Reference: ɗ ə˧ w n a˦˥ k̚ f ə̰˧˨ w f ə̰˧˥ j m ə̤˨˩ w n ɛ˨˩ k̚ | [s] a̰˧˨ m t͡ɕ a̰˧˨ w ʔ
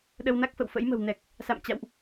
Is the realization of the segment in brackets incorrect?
no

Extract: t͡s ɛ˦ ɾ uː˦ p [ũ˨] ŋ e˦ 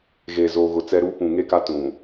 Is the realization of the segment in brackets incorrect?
no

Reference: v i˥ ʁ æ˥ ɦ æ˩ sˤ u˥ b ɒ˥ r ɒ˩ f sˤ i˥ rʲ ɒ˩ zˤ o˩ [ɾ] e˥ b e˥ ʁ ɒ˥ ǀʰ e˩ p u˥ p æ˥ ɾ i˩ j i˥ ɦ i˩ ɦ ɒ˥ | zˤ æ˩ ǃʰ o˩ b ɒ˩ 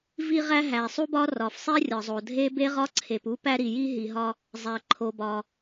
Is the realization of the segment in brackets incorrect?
yes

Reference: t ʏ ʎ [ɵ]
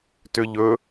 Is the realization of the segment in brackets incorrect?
no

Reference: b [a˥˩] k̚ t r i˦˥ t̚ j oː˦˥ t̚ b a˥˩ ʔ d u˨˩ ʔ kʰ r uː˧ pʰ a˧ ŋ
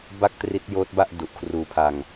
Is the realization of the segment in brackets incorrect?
no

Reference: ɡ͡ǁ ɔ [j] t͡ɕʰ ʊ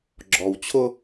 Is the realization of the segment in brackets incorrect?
yes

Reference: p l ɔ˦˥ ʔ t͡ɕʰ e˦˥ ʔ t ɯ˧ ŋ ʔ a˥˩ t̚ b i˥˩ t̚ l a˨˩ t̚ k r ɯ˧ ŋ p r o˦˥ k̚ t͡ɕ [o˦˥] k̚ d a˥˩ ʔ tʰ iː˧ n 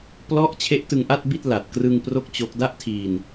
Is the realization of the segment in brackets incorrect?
no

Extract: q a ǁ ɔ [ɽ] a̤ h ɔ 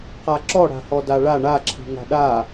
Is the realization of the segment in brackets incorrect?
no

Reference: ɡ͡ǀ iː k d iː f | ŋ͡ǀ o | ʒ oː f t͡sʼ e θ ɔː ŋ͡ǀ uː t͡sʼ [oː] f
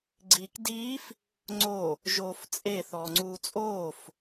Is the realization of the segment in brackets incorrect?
no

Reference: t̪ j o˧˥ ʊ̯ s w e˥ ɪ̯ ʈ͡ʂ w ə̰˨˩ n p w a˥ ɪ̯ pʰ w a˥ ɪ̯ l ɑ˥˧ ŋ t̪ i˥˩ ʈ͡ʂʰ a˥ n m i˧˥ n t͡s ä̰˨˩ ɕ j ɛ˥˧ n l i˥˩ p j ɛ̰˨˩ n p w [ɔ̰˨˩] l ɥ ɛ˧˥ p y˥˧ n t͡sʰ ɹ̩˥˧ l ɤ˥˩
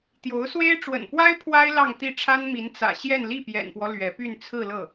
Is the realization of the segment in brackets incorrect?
yes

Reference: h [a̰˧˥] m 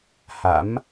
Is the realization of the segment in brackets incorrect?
no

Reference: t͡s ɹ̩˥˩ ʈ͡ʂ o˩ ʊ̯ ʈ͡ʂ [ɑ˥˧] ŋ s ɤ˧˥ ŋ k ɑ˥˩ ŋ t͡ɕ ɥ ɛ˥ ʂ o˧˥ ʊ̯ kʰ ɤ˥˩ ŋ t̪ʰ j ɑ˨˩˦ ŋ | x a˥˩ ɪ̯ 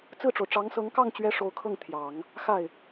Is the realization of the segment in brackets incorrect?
yes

